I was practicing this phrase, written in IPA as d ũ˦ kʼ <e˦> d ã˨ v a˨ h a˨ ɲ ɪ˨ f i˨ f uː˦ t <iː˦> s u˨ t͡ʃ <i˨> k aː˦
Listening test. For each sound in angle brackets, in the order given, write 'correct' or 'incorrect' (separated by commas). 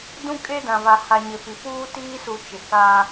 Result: correct, correct, incorrect